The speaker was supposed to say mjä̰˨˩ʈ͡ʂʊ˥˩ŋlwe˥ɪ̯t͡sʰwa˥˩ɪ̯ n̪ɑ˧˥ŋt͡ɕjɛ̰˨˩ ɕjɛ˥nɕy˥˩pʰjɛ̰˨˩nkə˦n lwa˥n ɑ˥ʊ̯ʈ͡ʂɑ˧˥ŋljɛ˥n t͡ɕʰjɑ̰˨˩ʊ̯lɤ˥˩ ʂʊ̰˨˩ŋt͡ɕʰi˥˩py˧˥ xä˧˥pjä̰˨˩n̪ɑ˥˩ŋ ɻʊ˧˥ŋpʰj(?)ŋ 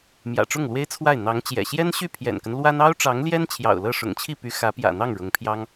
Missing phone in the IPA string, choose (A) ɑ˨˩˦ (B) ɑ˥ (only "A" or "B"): B